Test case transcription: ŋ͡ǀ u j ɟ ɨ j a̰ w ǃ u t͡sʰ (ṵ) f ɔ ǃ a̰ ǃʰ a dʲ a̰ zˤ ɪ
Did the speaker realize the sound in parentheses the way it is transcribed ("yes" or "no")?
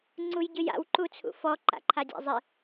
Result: yes